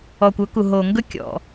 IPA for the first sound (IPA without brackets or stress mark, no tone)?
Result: ɔ